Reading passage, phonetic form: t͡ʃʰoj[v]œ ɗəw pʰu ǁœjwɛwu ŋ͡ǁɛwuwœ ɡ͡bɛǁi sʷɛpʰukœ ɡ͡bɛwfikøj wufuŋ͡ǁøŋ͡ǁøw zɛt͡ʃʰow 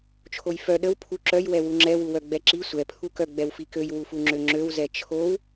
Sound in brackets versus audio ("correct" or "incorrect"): incorrect